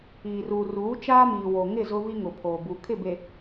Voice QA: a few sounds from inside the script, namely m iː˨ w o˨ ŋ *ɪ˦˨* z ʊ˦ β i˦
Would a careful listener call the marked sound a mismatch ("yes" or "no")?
no